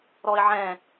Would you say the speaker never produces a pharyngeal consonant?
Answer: no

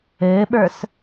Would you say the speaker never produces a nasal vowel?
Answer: yes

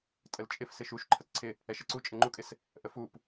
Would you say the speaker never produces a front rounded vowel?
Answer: yes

